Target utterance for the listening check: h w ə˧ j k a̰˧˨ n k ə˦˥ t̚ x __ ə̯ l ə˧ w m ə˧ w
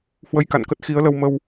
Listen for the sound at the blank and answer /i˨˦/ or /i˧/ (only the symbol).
i˨˦